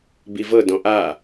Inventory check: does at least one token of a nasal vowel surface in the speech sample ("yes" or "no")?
yes